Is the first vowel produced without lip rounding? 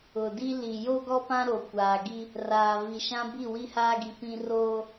no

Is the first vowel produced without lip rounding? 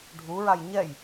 no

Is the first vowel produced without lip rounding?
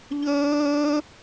no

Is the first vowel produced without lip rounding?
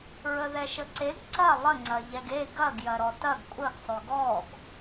yes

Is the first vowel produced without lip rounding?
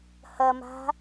yes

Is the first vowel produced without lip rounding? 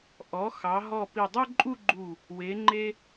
no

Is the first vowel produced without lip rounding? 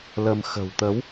yes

